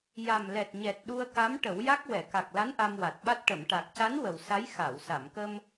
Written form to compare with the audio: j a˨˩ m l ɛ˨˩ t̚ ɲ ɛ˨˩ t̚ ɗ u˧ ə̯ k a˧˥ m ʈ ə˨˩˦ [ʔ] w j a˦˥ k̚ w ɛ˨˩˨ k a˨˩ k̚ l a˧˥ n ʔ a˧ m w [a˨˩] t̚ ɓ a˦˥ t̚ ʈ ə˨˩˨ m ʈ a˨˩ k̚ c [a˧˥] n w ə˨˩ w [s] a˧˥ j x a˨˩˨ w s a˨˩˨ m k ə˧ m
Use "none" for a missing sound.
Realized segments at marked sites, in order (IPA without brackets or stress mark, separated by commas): none, a˨˩, a˧˥, s